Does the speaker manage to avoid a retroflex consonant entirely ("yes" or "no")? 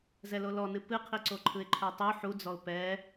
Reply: yes